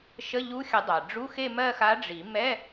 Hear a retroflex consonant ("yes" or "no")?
yes